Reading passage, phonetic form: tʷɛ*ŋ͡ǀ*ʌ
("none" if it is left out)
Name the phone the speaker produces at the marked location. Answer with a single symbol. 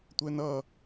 n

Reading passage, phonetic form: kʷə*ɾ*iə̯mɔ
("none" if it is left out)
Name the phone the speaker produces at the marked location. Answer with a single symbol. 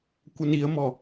n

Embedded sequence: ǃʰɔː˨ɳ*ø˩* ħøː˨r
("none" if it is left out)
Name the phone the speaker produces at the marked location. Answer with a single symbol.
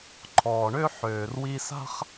ø˥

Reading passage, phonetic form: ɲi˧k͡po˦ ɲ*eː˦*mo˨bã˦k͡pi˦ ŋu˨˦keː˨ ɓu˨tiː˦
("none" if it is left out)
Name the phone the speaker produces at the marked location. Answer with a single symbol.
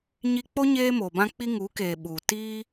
eː˦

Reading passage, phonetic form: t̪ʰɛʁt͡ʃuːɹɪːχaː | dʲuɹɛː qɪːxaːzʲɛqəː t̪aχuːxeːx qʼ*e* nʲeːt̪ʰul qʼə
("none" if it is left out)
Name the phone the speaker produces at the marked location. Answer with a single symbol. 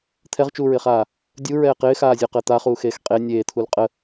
e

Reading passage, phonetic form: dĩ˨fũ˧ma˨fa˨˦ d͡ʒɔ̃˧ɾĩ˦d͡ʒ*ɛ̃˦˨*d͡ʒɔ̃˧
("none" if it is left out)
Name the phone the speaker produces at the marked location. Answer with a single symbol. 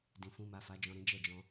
ɛ˦˨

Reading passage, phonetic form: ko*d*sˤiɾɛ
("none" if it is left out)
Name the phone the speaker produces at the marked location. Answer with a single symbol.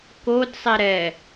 d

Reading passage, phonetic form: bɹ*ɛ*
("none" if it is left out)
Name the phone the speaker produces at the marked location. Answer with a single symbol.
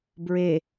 e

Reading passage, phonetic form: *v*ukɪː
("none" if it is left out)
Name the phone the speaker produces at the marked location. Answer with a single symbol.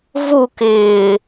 v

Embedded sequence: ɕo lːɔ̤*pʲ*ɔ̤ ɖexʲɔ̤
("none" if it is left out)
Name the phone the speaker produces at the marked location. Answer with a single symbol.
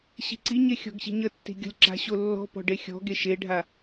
p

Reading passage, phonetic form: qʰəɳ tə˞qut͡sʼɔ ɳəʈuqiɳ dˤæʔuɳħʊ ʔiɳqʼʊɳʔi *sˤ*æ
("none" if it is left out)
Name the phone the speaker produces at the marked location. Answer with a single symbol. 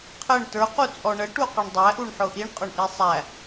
sˤ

